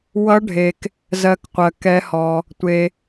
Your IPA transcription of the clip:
wʌ˧˥ɖʱe˨k | zɜ˧˥kqʷɜ˨ kɛ˧˥hɔ˨ | tʷe˨

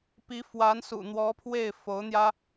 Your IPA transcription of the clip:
pi˧˥ fwa˧˥nsṵ˨˩n̪wɔ˧˥pʰwe˥˩ɪ̯ fo˧˥ʊ̯n̪jä˥

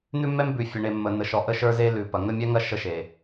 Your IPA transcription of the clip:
n̪ʉ˦mːɛ˦mbʉ˨ fʲə˨ɳe˨ mːə˨n̪ə˨ʃɔ˨ ʔə˦ʃə˞˦ze˦ lʉ˨ pɐ˨ŋə˦mʲɛ˦ŋɐ˦ ʃə˦ ʃe˨

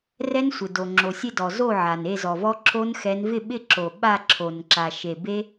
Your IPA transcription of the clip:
rɛ˦˥nsʷɪ˩do˩ ŋ͡ǁo˩sʲe˥˨dɔ˩ zo˥˨ʕa˩n e˥˨zɔ˩vɔ˦˥ ǁʰo˦˥nxɛ˨˦n vɪ˥˨ɓɪ˥˨ ǁo˩ ɓa˥˨ ǁʰo˩n ǁa˩ʃe˩ be˦˥

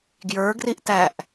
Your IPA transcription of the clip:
ɡjə˞ɡriʔ tæʔ

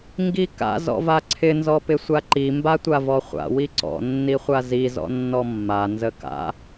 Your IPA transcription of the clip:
ŋɡika̰ zɔ̰vaǀʰɪ nzɔpɪsʷaǃi mbatʷavɔχʷa̰ wiǀɔ̰ nːiχʷazi zɔ̰nːɔmːa nzəka̰

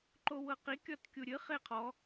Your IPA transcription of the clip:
ǃowɤqi kʲɔtkʲuɾʲɨ χeqʰɔ

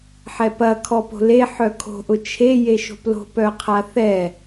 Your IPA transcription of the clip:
ħɛpɐ kʰɔpo̤le ħœkʰo̤ ʔʊt͡ʃʰe jeʃo̤plo̤p œqʰaθɛ

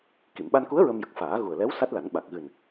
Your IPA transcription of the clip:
ki˨˩˨mɓa˧nku˧˥ə̯ ɹə˧mjə˨˩k̚faː˨˩˦ ɣu˨˩ə̯lɛ˧˥w sa˦˥t̚la˨˩˦n ɓa˨˩k̚ɣɨ˨˩n

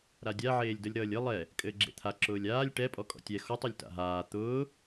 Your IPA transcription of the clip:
ɾadʲa ʕeːlʲdʌlʲɾʌːlʲɘ lˠɛ | kʼɘːɡ͡ǁḛt̪ʰa ǁʊːlʲaːlʲ ʈɛ pʼɔkʼɔ̰tʲɛ xɔtˤ ʊlʲta̰ɦaː t̪ʊː

